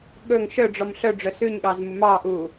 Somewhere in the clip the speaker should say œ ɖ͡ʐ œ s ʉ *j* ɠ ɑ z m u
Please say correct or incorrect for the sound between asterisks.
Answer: incorrect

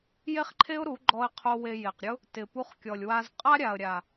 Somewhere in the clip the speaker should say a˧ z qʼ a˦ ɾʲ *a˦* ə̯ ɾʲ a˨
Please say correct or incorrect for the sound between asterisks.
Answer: incorrect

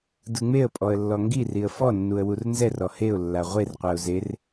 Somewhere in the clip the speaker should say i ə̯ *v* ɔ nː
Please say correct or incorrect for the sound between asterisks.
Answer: incorrect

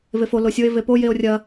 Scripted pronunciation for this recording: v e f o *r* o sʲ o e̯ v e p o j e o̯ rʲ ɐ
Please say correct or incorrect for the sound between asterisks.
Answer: incorrect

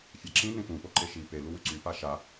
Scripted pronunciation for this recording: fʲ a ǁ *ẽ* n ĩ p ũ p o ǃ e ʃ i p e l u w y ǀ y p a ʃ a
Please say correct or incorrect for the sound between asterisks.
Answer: incorrect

